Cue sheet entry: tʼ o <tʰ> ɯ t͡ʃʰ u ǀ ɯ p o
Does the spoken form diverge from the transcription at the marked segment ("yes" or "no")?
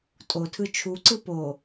no